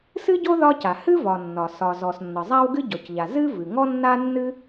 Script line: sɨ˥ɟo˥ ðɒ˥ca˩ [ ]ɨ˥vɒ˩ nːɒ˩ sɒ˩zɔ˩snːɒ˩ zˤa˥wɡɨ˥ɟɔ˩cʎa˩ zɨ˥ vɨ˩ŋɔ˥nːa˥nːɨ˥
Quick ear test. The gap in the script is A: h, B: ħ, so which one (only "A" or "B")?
A